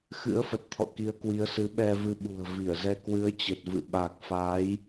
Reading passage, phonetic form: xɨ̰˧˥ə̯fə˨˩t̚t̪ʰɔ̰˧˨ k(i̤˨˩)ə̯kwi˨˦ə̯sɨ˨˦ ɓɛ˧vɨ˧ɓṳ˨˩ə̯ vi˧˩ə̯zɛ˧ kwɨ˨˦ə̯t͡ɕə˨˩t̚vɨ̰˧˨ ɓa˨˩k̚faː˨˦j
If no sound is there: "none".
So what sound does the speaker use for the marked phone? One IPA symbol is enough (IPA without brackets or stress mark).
i˨˦